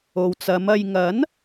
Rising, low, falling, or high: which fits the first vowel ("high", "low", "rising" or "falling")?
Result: low